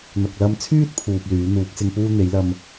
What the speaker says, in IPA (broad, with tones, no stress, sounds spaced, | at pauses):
n̪ ɐ˨ k̚ l ɐ˧ m t͡sʰ yː˥ t̚ pʰ uː˨ p̚ l yː˨˥ n̪ uː˨˥ k̚ s ɪ˧ ŋ p uː˥ n̪ e˨˥ j l ɐ˧ m